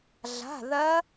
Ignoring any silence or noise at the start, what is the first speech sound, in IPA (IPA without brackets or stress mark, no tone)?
ɮ